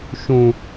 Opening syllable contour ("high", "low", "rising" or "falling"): low